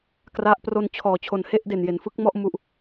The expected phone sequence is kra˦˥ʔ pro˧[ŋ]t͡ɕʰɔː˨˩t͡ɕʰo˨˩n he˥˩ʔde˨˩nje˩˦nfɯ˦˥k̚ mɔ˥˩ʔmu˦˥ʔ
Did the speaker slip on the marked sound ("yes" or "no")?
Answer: yes